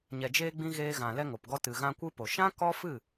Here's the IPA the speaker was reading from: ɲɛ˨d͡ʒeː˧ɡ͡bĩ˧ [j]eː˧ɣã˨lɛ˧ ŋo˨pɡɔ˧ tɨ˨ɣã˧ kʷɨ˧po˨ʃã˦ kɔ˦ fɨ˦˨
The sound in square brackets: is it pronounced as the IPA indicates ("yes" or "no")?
no